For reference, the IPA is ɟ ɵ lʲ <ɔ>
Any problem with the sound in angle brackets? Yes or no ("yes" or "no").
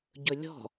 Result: yes